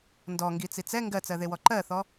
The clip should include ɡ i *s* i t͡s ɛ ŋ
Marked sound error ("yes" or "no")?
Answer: yes